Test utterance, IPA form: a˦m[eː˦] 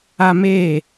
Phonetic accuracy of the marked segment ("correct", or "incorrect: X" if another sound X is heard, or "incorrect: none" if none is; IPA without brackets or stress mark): incorrect: eː˦˨